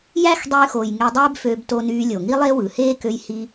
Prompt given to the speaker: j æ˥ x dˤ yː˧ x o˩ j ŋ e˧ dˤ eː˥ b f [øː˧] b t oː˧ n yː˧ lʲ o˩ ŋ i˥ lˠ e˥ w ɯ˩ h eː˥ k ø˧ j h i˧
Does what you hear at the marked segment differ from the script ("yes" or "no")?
no